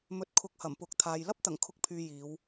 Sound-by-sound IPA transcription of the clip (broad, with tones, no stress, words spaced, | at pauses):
mɵ˧t̚kʰʊ˧k̚ hɐ˨˩mpʊ˨˥k̚t̪ʰaː˨j lɐ˥p̚t̪ɐ˨˩ŋkʰʊ˨˥k̚pʰyː˨ jiː˨˧w